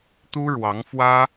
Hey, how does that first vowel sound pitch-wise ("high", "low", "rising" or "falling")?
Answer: high